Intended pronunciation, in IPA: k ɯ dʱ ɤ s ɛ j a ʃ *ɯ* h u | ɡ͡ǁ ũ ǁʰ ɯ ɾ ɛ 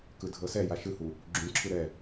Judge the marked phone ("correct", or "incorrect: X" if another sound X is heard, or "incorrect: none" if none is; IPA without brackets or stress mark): correct